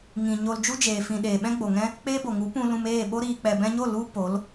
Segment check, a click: absent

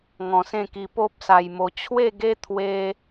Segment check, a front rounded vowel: absent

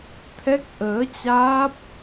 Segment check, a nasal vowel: absent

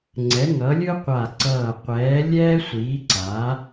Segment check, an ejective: absent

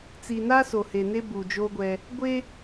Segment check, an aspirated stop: absent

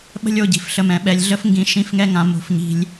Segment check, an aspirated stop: absent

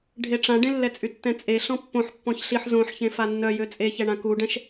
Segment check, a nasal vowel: present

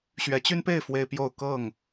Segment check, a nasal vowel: absent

